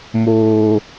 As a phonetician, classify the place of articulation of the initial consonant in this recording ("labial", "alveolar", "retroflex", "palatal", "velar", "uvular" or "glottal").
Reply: labial